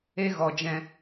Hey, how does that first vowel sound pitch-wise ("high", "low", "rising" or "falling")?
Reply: high